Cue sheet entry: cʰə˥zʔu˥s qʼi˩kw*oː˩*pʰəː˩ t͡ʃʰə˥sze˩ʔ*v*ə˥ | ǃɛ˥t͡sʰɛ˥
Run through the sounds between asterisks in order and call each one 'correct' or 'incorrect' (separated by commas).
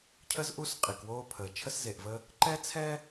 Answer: incorrect, correct